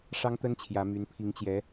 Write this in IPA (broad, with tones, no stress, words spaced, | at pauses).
ʂɑ˥ŋt̪ə˥n t͡ɕʰjä˧˥my˧˥n pʰi˧˥ŋt͡ɕjɛ˧˥